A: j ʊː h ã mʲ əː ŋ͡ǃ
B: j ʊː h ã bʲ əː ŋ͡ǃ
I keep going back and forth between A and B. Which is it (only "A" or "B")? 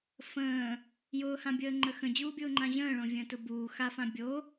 B